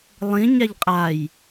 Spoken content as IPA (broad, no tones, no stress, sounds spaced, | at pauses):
lˠ ĩ ɲ a ʎ qʼ a j